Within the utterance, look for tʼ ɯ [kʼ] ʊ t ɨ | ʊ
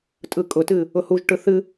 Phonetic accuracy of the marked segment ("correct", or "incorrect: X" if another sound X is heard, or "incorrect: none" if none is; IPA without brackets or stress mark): correct